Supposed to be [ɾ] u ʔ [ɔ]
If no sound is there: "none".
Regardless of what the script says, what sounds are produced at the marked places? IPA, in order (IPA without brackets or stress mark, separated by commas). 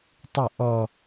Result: tˤ, ɔ